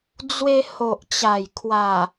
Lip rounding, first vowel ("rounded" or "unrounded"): unrounded